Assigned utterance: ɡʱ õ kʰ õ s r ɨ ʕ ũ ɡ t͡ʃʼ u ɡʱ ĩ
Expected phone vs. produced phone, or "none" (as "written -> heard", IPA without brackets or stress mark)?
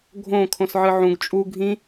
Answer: r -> ʕ